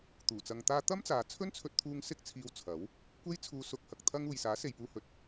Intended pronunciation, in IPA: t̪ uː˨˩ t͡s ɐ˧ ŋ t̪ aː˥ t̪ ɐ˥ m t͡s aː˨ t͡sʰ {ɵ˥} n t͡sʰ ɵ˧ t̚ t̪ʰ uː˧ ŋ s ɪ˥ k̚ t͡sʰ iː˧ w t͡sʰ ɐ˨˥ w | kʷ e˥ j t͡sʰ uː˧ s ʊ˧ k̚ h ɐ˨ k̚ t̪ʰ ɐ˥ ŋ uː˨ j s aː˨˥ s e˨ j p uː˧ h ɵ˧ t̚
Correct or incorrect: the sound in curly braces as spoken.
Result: correct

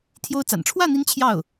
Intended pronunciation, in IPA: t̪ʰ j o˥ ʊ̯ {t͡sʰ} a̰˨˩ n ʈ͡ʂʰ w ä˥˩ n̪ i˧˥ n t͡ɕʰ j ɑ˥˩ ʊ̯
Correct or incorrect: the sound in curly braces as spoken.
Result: incorrect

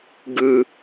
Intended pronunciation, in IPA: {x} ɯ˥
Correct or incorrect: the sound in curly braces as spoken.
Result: incorrect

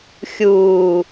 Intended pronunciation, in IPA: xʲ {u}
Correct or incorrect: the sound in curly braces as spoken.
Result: incorrect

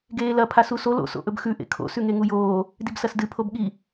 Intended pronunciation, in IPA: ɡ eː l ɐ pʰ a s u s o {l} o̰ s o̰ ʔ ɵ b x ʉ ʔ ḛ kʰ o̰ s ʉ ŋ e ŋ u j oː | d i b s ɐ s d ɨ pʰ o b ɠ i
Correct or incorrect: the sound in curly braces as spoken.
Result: correct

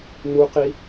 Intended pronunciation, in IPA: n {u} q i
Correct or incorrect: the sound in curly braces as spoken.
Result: correct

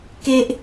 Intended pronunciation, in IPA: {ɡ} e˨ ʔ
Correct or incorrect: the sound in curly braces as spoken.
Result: incorrect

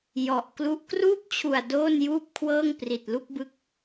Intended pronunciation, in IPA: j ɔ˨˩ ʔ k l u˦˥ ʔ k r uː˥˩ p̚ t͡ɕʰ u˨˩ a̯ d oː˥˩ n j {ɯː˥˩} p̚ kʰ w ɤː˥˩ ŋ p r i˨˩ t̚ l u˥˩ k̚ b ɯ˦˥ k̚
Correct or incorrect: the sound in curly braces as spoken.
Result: incorrect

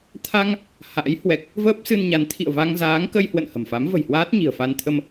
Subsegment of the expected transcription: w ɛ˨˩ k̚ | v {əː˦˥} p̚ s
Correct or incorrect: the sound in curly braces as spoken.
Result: correct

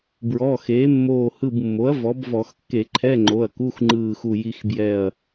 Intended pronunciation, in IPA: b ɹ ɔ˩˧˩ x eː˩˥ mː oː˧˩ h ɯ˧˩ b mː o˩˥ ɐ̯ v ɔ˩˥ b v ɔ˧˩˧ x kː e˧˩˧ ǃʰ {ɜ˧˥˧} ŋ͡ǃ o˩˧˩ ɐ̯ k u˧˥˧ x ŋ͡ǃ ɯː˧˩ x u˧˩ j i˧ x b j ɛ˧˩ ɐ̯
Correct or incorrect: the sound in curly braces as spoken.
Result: incorrect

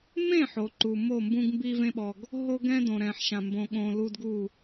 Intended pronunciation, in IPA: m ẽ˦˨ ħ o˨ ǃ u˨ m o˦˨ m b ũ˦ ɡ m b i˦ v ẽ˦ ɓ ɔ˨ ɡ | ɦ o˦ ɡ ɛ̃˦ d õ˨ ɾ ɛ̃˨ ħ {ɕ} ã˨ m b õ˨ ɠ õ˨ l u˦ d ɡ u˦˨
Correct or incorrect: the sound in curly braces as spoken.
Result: incorrect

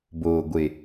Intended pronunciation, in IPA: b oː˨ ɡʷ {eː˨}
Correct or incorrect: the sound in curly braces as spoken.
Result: incorrect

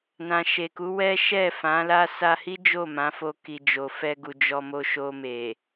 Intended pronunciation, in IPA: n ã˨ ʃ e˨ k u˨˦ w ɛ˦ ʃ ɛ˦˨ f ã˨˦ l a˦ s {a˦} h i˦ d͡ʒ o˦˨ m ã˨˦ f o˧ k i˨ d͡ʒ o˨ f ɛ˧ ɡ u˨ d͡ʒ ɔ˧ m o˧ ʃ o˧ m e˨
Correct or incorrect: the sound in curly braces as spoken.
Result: incorrect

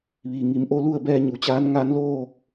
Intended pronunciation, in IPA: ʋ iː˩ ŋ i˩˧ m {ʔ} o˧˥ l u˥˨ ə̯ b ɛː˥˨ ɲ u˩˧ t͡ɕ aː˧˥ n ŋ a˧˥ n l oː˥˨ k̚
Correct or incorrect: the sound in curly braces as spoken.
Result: correct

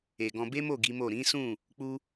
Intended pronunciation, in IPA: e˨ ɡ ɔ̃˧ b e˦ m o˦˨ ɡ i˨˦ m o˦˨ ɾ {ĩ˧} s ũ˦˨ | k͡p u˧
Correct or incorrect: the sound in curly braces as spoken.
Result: incorrect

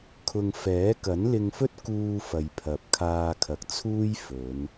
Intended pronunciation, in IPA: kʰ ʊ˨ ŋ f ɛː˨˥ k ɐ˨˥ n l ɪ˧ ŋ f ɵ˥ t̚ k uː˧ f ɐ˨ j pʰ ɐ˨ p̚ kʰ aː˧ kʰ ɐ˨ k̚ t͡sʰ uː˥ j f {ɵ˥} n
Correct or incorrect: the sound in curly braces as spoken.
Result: incorrect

